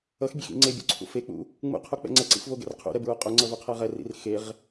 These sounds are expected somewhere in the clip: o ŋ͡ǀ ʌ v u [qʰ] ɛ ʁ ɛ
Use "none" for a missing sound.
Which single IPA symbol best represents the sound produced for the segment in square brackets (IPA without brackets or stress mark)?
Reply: qʰ